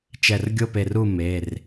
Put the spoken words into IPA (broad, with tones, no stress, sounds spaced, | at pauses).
t͡ʃ ɛ˧˩ r ɡʲ o˥˨ p e˧˩ r u˥˨ m e˩˧˩ r